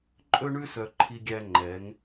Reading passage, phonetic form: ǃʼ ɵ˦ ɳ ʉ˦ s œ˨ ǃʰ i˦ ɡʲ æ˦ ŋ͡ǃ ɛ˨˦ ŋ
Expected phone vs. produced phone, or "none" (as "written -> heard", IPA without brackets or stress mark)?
none